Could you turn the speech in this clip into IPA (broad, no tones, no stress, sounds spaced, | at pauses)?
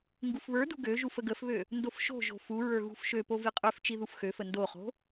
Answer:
ŋ ɡ u f β ə˞ d ṳ ɡ ø ʒ u f ə ɡ ə f β ø | n d o f ʃ o̤ ʒ o̤ f u ɹ ə˞ ɣ ṳ f ʃ ø p o v i qʼ ø f t͡ʃ i ð u f x ø f ə n d o χ o̤